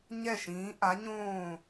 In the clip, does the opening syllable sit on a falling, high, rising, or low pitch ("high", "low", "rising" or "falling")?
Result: falling